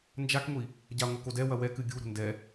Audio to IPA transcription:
n d͡ʒ a k ŋʷ i | ɟ a ŋʷ ɐ k o d ɛ w ɐ w ɛ k ɨ ɡʲ u ɾ o̤ n d ɛ

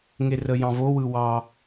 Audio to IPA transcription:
ŋ e r ə j ɑ̃ v o w ɯ w ɑ

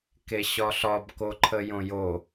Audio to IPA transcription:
k e ɕ ɒ ɬ ɒ b k o ǃʰ ə j õ j o

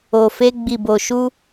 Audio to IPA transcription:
o˨ f e˧ ɡ͡b i˨ b o˨ ʃ u˧

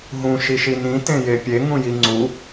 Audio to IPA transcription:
ɦ ũ ʃ i ʃ i n ĩ t ẽ j e pʲ e ŋ ũ j i ŋ͡ǀ u

